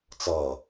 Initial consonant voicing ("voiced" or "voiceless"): voiceless